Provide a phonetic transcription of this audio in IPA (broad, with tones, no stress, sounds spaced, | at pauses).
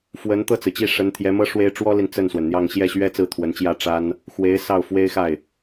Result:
f w ə˧˥ n t̪ ɤ˥˩ t͡s ɹ̩˩ t͡ɕ i˥˩ ʂ ə˧˥ n t̪ʰ j ɛ˧˥ m ɤ˥ ʂ w e˥ ɪ̯ ʈ͡ʂ w ɔ˥ l i˨ n t͡s ə˥˩ n s w ə˩ n n̪ j ɑ˥˧ ŋ ɕ j ɛ˥˩ ɕ ɥ ɛ˥ t͡s ɹ̩˥˩ t̪ʰ w ə˧˥ n t͡ɕ j ä˥ ʈ͡ʂ a˥ n | x w e˧˥ ɪ̯ s ɑ˥˩ ʊ̯ f w e˥ ɪ̯ x a˥˩ ɪ̯